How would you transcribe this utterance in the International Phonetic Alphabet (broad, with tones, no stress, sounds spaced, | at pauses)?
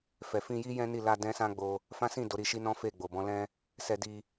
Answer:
f ɛ˨ f ĩ˧ j i˦ j ɛ̃˦ n i˦˨ l a˧ d ɛ̃˦ s ã˦ ɡ͡b o˧ | f ã˦ s ĩ˦˨ d o˨˦ ɾ i˧ ʃ i˦ n ɔ̃˦ f e˦˨ ɡ͡b o˨ b ɔ̃˨˦ l ɛ̃˦ | s ɛ˧ d i˧